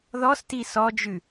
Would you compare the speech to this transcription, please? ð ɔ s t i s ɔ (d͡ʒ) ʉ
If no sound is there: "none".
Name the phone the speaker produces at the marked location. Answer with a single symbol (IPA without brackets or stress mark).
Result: d͡ʒ